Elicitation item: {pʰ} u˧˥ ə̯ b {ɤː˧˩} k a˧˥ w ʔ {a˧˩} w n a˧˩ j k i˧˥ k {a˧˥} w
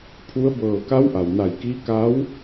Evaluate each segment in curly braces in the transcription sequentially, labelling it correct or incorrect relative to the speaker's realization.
correct, correct, incorrect: a˩, correct

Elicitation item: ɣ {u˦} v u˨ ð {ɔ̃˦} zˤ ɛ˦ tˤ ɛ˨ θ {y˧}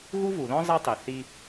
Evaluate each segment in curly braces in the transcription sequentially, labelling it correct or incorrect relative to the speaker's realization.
correct, correct, incorrect: i˧

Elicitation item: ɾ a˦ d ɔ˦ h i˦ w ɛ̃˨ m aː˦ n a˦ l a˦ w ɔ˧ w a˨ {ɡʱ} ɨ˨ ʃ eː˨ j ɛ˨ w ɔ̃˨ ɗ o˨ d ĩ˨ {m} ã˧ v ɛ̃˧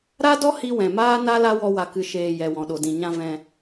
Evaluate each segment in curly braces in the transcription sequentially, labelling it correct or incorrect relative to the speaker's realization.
incorrect: k, incorrect: ɲ

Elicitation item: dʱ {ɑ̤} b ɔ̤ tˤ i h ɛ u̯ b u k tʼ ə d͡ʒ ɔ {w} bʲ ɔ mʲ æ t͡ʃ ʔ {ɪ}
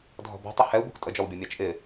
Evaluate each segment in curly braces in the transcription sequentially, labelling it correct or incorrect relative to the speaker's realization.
incorrect: ɔ̤, correct, correct

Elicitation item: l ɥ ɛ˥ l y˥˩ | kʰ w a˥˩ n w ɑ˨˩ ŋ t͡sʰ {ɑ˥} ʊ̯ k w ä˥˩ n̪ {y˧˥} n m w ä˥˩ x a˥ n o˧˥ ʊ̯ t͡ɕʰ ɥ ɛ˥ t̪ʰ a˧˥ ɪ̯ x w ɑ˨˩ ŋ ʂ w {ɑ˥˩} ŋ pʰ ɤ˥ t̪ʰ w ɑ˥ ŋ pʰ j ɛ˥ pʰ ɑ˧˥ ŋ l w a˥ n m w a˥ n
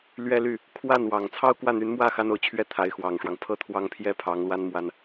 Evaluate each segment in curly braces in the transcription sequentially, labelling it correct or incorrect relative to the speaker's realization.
correct, correct, incorrect: ɑ˦

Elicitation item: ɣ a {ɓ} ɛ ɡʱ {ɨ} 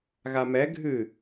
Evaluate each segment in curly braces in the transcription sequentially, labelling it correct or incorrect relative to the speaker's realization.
incorrect: m, correct

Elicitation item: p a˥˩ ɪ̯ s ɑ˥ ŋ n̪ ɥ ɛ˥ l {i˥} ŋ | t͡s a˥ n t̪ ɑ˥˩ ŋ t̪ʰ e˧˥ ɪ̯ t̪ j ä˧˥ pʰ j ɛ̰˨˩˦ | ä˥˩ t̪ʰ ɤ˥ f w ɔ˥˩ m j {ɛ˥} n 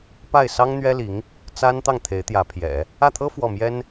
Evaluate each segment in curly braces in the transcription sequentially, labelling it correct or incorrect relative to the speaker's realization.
incorrect: i˧˥, correct

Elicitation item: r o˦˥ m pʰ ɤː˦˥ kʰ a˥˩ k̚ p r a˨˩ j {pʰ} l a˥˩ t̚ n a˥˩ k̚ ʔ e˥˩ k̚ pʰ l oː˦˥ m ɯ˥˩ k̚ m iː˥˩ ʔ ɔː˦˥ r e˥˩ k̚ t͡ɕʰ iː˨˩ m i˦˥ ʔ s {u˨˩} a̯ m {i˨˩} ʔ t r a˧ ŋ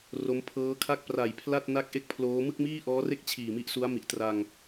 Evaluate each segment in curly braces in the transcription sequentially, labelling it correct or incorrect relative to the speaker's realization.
correct, incorrect: u˦˥, correct

